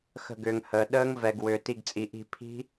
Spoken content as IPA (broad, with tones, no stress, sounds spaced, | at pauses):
x ə̤˦˨ ɡ ʏː˨ ŋ h əː˨ ɗ əː˦˥ ŋ v ɛ˨ ɡ w ʏː˨ t i˦˨ ɡ t͡sʼ i˨ ʔ i̤˦˨ pʰ i̤˦˥